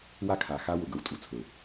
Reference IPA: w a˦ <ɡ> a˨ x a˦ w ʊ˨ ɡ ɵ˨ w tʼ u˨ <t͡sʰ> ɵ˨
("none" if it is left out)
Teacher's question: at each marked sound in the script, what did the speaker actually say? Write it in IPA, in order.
kʰ, t͡sʰ

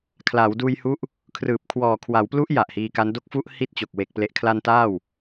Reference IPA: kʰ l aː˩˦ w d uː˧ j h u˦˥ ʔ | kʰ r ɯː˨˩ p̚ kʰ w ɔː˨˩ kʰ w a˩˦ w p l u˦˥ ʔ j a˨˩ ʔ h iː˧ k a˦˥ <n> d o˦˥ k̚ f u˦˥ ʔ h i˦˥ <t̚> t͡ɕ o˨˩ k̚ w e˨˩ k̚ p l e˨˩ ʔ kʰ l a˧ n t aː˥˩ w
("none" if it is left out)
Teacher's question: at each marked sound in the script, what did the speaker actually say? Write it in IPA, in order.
n, t̚

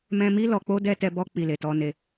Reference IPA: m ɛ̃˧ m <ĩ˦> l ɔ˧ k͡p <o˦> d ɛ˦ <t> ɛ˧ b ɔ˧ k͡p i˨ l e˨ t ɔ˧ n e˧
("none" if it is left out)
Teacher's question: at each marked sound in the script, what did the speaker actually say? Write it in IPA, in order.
i˦, o˦, t

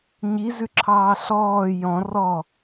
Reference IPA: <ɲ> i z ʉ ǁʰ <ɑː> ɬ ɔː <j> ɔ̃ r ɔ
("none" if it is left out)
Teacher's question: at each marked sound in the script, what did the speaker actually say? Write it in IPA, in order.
ɲ, ɑː, j

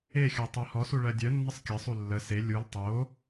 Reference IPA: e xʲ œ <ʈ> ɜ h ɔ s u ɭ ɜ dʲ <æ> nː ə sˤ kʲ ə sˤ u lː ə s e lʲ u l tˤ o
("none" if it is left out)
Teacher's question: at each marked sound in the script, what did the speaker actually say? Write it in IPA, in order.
tˤ, œ

